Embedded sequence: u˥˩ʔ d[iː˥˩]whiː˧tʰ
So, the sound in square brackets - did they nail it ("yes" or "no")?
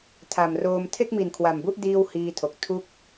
yes